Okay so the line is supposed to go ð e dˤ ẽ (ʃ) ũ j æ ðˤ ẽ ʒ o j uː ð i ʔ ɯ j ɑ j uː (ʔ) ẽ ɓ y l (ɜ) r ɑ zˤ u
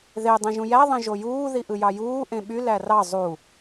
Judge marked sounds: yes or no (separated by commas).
no, yes, no